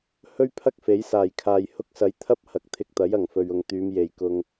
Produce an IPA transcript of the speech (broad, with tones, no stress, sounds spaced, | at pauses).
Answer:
h ɵ˥ ɥ pʰ ɐ˥ k̚ f e˨˥ j s aː˨˩ j kʰ aː˨ j h ʊ˧ k̚ s ɐ˨˧ j t̪ʰ ɐ˥ p̚ h ɐ˨˥ k̚ t̪ʰ ɪ˧ k̚ t̪ ɐ˨˥ j ɐ˨˩ ŋ f ɵ˨ ɥ ʊ˨ ŋ t̪ yː˨˧ m j e˨ j k ʊ˧ ŋ